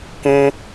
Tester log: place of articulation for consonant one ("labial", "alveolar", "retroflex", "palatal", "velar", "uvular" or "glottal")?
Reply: velar